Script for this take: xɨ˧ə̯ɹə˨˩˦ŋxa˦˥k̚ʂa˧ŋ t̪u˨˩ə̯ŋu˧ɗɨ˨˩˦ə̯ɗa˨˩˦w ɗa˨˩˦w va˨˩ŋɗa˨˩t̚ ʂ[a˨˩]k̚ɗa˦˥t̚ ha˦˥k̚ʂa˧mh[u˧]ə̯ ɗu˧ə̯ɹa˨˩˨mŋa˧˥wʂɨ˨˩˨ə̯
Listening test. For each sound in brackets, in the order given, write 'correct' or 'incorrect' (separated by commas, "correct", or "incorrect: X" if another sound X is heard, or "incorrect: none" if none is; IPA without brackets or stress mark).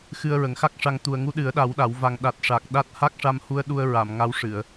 correct, correct